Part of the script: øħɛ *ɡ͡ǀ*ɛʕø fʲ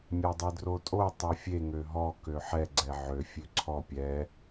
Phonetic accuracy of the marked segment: correct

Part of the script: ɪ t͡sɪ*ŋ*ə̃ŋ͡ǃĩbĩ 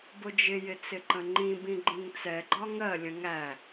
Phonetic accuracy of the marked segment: incorrect: ǃ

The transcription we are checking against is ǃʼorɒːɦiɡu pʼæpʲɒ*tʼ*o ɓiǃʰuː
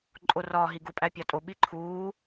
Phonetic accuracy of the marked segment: correct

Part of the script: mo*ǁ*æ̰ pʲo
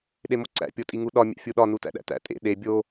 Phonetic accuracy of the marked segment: incorrect: ǀ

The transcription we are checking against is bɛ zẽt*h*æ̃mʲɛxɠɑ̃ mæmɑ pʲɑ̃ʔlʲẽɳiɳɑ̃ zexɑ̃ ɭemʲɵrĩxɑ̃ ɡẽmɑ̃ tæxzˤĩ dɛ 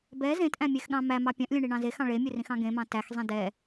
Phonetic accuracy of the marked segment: incorrect: ʔ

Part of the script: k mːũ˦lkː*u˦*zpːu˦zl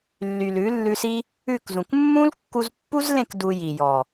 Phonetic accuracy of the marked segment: incorrect: u˧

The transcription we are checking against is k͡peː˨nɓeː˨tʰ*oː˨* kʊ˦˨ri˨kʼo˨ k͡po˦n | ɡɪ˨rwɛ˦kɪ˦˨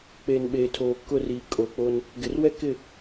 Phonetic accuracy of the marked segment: correct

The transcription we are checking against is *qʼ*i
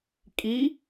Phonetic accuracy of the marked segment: incorrect: kʼ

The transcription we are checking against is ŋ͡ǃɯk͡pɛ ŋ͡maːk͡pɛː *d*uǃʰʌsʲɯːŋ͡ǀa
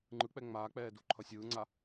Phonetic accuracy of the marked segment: correct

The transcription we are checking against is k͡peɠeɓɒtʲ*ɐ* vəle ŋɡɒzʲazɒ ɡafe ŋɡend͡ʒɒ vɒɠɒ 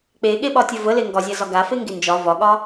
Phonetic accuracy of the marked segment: correct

